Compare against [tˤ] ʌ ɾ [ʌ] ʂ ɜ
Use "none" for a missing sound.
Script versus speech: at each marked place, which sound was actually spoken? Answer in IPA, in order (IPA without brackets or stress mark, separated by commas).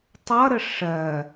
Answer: tˤ, ə